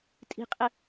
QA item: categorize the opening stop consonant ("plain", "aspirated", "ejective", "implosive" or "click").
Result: ejective